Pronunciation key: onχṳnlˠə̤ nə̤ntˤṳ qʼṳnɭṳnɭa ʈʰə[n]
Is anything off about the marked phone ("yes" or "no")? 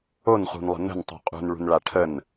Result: no